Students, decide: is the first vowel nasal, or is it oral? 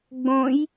nasal